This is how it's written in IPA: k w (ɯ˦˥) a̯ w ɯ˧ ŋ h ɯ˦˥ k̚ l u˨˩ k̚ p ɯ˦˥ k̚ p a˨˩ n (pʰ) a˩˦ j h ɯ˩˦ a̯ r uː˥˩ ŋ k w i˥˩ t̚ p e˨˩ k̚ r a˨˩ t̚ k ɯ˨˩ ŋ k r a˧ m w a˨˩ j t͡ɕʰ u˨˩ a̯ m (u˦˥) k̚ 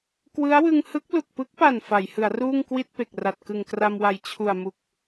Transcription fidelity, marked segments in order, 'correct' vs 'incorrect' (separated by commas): correct, incorrect, incorrect